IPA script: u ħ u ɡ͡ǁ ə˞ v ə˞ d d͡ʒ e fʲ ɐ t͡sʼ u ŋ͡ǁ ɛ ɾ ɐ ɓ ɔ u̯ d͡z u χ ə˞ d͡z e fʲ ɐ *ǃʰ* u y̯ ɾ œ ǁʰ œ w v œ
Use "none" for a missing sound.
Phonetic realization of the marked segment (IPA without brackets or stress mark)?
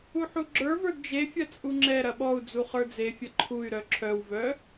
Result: ǃʰ